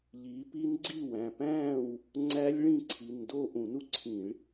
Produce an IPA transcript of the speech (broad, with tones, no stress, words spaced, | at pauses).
ʎiː˨˦pi˦˥n ɡ͡ǀi˥˨wæ̃˩˧˩pæ̃ː˥˨w | ŋ͡ǀæ˦˥lʲ ɭĩ˥˨ǀʰi˩˧˩ndo˥˨ ʔũ˧˩˧nu˦˥ǀʰĩ˧˩˧ɭ